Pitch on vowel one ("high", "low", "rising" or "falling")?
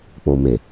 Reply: low